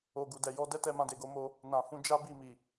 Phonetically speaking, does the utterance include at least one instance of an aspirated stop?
no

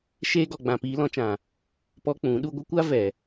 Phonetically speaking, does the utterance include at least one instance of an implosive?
yes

